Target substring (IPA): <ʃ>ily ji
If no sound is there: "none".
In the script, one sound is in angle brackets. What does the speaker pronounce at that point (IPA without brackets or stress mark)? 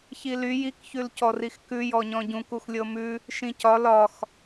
ç